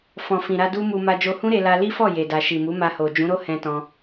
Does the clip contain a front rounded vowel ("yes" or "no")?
no